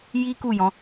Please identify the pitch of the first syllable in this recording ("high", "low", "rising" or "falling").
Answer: high